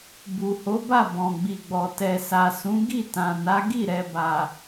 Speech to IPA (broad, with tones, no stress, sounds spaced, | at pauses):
b u˨ h o˨˦ b a˦˨ b ɔ̃˨ ɡ͡b i˨ ɡ͡b ɔ˨ t ɛ˨ s a˨ s ũ˨˦ ɡ i˦˨ t ã˨ n a˨˦ ɡ i˦˨ ɾ ɛ˨ b a˨